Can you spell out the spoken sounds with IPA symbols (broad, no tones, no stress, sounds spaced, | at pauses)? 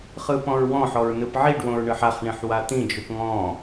χ ɯ p ɔ̃ ɹ w ɔ̃ ħ ɔ ɹ n ɯ p ʕ i ɖ w õ ɹ ɳ ɯ ħ a χ ɳ ĩ ħ w a t̪ ĩ d͡ʒ u p ŋ ɔ̃